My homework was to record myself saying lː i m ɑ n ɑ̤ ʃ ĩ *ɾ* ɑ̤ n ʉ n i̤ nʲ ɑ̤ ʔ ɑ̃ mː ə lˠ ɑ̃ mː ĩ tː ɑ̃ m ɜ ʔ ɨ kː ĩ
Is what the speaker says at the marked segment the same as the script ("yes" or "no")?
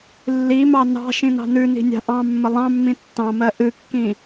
no